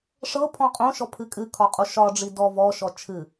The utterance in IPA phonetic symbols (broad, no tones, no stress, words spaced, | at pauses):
ʂɤpʰɔ̃ qʼõʃɔpʰɨ kʼɨkʰɒ qʼoʃɒ ɖ͡ʐidɔ vɔʃɔ t͡ʃʰɨ